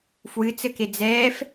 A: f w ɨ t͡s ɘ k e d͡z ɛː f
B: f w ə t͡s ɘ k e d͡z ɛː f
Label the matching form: A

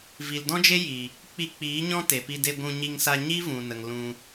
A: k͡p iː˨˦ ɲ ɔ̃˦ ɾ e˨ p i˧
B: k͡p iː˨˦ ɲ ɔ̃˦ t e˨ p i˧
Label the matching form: B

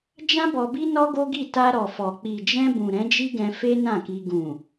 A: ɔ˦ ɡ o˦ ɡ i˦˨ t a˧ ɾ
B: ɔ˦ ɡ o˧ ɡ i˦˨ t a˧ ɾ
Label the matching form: A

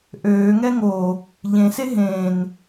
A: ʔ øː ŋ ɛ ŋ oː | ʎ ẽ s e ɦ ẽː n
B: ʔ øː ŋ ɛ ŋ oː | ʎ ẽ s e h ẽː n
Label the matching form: A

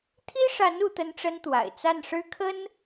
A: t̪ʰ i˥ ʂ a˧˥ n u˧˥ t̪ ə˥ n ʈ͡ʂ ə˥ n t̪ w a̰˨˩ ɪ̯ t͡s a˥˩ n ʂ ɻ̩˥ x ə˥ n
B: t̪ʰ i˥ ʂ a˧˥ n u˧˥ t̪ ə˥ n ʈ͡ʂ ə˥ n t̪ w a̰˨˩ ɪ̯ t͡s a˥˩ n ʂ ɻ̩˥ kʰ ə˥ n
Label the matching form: B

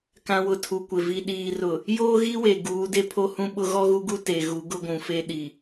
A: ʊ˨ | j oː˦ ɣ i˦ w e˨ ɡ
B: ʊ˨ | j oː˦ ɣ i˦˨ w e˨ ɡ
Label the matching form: A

